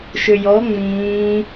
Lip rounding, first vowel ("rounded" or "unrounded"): rounded